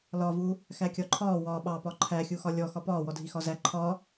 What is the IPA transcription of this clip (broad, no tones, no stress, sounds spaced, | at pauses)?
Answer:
l ɒ v u | x æ kʲ ɒ ǃʰ ɒː w ɒː ɓ ɑ p ɒ ǃʰ æ xʲ u x ɒ lʲ ɔ x ɒ p ɒː w ɔ dʱ i x ɒ z æ ǃʰ ɒ